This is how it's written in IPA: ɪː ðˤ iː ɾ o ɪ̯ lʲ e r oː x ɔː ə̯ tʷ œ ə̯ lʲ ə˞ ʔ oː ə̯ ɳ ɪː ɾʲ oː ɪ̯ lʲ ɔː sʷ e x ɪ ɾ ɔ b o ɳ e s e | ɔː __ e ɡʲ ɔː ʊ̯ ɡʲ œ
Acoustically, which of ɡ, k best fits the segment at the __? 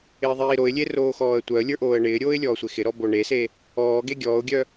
ɡ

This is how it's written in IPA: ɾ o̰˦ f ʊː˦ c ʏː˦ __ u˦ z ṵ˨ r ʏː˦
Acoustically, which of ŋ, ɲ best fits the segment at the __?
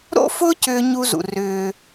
ɲ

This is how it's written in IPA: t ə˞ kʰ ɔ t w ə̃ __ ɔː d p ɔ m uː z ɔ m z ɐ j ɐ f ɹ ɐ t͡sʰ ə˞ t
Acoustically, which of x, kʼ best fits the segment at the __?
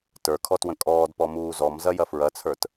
kʼ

